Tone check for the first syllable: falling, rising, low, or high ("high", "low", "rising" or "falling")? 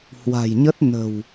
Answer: low